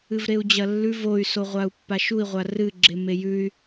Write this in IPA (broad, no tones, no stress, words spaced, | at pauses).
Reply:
ɨvɾeu̯d͡ʑɐlːʉv oy̯ soʁʷau̯pːaʃui̯ ʁʷarɨ ɡ͡ǁemejʉy̯